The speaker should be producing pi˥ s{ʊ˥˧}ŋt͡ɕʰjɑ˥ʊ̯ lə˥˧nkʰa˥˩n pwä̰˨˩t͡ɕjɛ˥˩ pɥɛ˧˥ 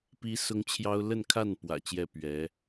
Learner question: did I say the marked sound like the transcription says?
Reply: no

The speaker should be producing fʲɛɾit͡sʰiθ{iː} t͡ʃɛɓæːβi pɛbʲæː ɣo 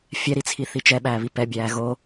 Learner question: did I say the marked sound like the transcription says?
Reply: no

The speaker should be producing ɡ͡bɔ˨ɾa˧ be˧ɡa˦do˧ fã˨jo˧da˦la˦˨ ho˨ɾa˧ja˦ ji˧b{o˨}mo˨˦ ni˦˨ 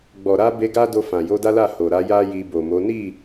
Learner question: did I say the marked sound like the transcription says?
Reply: yes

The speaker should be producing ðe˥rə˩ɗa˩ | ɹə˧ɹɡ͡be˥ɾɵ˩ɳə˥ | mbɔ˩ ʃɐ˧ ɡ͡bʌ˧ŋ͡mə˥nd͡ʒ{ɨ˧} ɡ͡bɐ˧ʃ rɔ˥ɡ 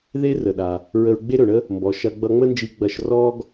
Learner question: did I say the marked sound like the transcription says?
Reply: no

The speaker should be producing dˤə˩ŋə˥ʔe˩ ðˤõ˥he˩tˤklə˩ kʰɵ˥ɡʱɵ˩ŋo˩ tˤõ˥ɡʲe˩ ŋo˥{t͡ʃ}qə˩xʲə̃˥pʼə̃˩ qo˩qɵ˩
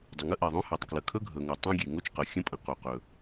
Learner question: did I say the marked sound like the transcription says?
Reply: yes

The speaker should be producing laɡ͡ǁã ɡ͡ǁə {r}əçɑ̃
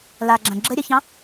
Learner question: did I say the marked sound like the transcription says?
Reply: no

